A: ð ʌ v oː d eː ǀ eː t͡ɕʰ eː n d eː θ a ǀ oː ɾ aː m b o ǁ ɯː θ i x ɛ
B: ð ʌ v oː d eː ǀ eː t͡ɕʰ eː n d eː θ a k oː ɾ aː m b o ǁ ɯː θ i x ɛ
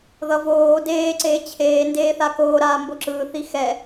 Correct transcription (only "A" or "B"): B